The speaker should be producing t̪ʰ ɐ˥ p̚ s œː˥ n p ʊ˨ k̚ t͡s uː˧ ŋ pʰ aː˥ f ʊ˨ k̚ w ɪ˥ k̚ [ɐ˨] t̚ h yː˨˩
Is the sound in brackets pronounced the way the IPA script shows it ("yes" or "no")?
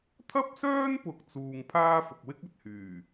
yes